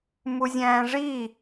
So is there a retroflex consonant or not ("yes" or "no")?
yes